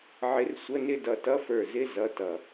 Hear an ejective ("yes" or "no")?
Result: no